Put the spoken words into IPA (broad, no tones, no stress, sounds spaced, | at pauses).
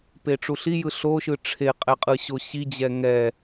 p e ʈ͡ʂ u ɬ i j ɯ ɬ o ʃ ɯ ʈ͡ʂʰ e qʼ ɛ qʼ ɯ ɕ o ɕ i d͡ʑ ɛ ŋ ɛ